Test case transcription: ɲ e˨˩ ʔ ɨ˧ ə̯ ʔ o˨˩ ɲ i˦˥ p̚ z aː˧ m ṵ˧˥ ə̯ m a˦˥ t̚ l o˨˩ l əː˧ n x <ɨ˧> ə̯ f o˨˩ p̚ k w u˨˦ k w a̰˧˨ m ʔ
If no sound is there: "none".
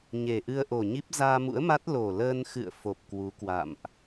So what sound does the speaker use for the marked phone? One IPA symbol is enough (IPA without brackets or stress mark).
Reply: ɨ̰˧˨